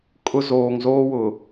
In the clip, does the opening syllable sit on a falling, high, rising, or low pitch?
high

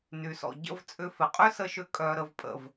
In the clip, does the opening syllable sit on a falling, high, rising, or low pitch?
low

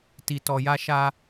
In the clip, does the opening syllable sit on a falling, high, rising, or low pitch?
low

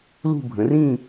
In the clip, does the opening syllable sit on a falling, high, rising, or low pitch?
falling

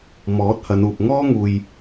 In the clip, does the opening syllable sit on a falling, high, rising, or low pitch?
rising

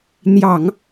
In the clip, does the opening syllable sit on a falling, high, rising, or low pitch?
low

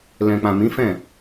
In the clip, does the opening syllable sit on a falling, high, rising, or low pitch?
low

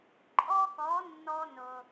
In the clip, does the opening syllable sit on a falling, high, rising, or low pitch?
high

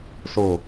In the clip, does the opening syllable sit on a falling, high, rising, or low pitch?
low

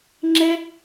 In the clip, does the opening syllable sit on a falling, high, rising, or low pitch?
high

